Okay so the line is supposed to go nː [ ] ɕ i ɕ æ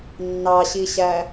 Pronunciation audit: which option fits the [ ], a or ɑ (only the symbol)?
ɑ